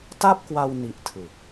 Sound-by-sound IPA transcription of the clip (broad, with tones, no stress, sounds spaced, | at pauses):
t a˥˩ p̚ k w a˧ w n i˦˥ ʔ tʰ ɯ˨˩ k̚